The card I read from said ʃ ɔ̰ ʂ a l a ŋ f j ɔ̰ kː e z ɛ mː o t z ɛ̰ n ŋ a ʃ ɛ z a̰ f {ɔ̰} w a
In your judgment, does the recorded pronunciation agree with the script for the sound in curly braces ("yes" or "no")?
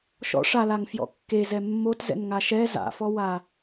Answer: no